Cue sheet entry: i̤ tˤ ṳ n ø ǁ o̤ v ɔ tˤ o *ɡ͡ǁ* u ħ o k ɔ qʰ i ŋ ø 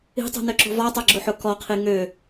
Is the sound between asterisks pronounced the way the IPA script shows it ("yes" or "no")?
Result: yes